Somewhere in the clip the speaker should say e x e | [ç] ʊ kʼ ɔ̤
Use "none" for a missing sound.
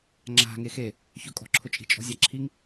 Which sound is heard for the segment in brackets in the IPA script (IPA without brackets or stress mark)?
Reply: ç